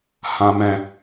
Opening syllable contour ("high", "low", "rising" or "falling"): low